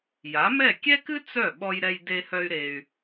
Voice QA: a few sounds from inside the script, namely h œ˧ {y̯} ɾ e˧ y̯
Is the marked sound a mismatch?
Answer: no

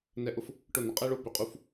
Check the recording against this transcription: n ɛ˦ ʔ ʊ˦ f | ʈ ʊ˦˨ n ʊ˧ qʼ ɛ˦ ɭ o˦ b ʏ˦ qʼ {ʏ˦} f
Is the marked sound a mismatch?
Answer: yes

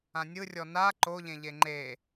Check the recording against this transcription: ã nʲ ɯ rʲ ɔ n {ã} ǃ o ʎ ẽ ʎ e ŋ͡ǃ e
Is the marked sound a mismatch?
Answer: yes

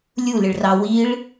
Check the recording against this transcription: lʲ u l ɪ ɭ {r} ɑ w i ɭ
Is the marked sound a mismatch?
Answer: no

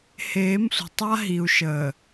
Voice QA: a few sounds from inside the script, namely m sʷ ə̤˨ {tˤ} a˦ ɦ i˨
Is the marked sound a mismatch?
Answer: no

